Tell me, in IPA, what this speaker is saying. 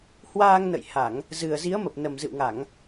h w aː˧ ŋ n ə̰˧˨ j h a˧˩˨ ŋ | z ɨ˨˩ ə̯ z i˨˦ ə̯ m ə˨˩ p̚ n ə˨˩ m z ɨ̰˧˨ w ŋ a˧˩˨ ŋ

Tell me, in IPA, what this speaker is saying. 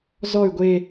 z ɔ y̯ ɡʷ e

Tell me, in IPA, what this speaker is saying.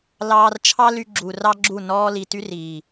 l ɑː˧ r t͡ʃʰ ɑ˦ l y˧ ɡ͡ǁ u˨ r ɑ˦ ɡ͡ǁ u˦˨ n ɔː˧ l i˨ t y˦ r iː˨

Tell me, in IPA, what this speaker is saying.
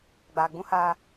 ɡ͡b aː˨ ɡ͡b ũ˦ h aː˦

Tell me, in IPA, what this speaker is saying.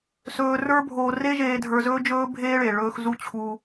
s ɵː˧ r ə˞˦ bʱ oː˧ r e˦ ʒ eː˧ dʱ ə˞˧ z ɵː˦ d͡ʒ ɵː˦ bʱ eː˦ ɭ e˨ ɭ ɵː˧ x z u˦ t͡ɕʰ u˧

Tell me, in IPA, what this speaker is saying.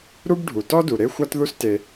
ɾ u˥ b ɖʱ u˩ t ɔ˥ d u˩ ɾ e˥ xʷ a˥ t ð u˥ s t e˩

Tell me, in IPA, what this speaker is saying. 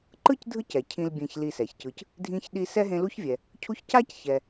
ǃ ɯ˥ c dʱ ɯ˦ c ɛ˩ cʰ ĩ˨ l bʲ ẽ˨ ç l i˨ s ɛ˩ ç c ɯ˨ c | dʱ ĩ˦ ç ɗ i˦ s ɛ˥ ɦ ẽ˦ l u˥ ç vʲ ɛ˨ | cʰ u˦ ç c a˥ c ç ɛ˨

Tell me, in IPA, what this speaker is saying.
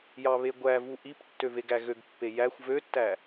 j ɑ β e ɡʷ æ v u ʔ i p tː ø v e ɡ æ ɣ ø ɡ pː e j æ xʷ v ø tː æ

